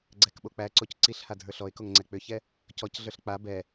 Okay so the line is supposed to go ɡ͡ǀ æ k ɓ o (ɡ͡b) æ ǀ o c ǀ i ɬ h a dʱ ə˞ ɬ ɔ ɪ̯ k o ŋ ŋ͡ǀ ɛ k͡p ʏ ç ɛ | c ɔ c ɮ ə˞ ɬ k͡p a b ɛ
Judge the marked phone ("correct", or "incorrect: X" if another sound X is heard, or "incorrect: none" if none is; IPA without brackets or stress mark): incorrect: k͡p